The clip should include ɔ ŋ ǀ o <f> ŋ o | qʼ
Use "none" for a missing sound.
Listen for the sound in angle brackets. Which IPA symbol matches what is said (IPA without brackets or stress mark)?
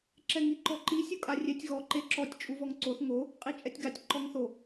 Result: θ